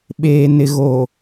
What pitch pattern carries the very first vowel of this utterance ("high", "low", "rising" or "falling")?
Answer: low